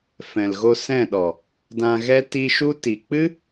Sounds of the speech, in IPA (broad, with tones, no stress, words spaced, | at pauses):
fɛ̃˨lɣo˧sɛ̃˦˨ɗɔ˨ | dã˧ɣɛ˦ tiː˧ʃu˦ti˨ k͡pɨ˦